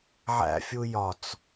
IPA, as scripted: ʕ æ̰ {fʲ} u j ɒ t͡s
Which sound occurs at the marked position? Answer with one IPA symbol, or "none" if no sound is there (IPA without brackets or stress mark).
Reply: fʲ